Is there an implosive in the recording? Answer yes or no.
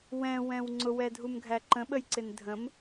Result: yes